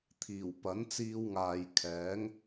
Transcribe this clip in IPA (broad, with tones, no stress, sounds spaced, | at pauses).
t̪ʰ iː˨˩ w p ɐ˨˥ n t͡s iː˧ w ŋ aː˨ j kʰ ɛː˨˥ ŋ